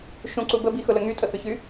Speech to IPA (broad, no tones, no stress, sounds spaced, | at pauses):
ʃ ũ ǀ u b ə b i x ʊ l ə ŋ y tʼ ə x ʏ ç y